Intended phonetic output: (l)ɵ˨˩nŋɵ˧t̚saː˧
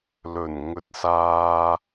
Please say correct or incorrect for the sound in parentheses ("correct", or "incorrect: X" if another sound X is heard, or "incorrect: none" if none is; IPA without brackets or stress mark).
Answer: correct